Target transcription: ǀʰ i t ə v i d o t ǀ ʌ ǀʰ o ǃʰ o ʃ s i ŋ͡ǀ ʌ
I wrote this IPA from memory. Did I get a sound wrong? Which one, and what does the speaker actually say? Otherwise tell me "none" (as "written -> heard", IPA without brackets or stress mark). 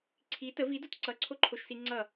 none